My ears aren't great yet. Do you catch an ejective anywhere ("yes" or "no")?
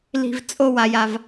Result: yes